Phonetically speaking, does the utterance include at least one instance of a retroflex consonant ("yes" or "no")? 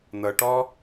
yes